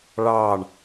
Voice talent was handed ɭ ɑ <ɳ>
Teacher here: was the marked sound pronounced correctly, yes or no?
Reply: yes